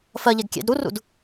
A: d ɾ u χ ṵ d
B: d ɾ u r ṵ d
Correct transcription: B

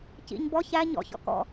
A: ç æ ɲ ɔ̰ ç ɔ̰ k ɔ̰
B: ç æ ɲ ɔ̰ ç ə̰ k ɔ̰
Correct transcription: A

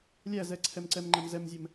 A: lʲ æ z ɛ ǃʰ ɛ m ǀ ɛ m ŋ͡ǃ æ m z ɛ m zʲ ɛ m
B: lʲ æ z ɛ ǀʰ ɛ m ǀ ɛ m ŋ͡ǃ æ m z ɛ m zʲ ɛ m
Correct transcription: B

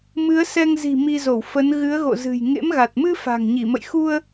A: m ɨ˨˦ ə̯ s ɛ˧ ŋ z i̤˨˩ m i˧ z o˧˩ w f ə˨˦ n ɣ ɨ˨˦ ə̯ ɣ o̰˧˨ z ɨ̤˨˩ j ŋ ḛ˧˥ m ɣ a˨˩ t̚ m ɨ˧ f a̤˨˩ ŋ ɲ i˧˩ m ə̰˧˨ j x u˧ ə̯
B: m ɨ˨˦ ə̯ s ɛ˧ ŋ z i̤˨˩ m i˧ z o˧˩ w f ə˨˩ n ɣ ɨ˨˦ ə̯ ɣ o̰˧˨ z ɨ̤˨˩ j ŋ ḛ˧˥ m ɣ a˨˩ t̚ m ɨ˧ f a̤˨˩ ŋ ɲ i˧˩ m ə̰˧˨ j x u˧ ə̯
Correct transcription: A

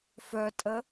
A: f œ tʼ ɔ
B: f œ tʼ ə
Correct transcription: B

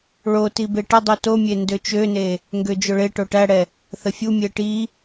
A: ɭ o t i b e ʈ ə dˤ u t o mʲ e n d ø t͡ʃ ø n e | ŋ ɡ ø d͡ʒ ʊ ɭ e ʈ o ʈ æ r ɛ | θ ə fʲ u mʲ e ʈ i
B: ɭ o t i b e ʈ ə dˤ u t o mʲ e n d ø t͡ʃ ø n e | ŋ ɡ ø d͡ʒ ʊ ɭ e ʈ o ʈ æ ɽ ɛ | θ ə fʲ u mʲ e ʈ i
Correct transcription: B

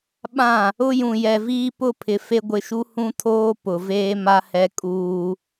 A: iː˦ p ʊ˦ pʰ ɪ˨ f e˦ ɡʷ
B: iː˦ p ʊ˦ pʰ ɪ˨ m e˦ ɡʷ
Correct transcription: A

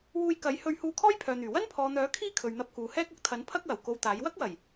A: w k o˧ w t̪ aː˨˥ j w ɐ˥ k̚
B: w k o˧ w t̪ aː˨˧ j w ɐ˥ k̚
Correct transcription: A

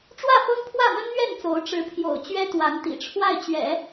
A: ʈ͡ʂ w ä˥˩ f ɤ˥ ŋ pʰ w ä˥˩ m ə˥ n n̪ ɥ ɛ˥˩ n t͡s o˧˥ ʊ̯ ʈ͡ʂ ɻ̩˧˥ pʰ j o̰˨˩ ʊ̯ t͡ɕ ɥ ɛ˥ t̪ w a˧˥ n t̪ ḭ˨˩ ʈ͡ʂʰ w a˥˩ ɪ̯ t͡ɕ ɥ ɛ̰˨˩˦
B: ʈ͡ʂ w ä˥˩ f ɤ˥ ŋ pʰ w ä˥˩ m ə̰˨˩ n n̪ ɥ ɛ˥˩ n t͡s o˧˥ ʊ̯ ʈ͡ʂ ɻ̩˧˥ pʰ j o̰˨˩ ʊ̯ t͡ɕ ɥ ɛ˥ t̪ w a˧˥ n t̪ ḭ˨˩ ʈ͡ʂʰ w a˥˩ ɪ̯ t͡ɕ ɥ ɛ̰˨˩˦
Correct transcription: A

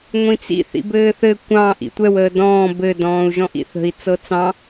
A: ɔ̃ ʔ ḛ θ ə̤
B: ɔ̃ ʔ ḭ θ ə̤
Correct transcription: B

